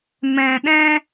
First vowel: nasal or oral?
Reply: nasal